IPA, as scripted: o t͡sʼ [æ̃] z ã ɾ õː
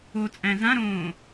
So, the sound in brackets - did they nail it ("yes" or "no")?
yes